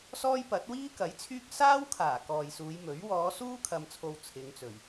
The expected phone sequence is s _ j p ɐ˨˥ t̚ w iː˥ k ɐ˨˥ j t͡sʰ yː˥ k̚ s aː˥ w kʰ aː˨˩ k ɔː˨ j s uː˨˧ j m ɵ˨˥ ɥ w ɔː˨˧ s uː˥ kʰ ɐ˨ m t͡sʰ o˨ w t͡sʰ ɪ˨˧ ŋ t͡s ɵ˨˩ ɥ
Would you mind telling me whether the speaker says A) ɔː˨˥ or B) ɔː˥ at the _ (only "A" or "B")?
B